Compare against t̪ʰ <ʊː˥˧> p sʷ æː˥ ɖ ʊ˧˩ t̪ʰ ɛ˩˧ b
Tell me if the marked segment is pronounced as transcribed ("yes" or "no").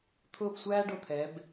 yes